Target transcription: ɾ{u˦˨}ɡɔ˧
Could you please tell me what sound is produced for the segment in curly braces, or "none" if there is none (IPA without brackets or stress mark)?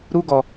u˦